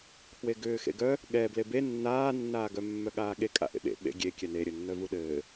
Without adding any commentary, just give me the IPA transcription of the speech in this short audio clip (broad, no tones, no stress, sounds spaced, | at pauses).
kʰ w e ɡ ʏː x ḛ ɡ œ | ɠ ɛ b l e b e nː aː nː aː ɡ œ mː œ ɠ aː ɠ e kʼ a̰ ʔ ḛ ɓ ḛ ɓ ḛ ɡʲ e kʲ ɛ n e ɾʲ ɘ nː œ v u ɗ ɘː